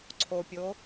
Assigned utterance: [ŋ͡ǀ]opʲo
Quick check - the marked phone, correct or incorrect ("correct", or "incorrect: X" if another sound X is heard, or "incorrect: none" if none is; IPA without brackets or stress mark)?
incorrect: ǀʰ